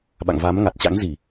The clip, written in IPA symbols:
ɓ a̰˧˨ ŋ v a˨˦ m ŋ a˨˩ t̚ t͡ɕ a̰˧˥ ŋ z i˧˩˨

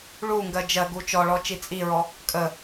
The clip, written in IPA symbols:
ɭ u ŋ ɡ ɜ d͡ʒ ɜ ɡ u t͡ʃ ɔ ɭ ɔ t͡ʃ i t͡sʼ i ɹ ɔ | kʼ ə

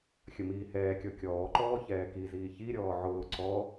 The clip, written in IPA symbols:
xʲ ə m iː h ɛː kʲ ɔ kʲ ɔː ǃ ɔː ç ɛː k i z iː ç i ɾʲ ɔː ʕ ʊː ǀ ɔ

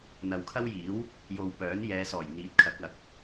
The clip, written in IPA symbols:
n̪ ɐ˨ w kʰ ɐ˥ w j iː˨˥ w | j o˨ w p œː˨˥ n j ɛː˨˧ s ɔː˨˩ j n̪ iː˨ t̚ kʰ ɐ˨˥ k̚ ɐ˨˥ k̚

